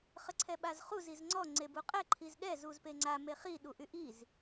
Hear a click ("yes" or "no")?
yes